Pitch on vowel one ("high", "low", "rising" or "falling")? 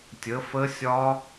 rising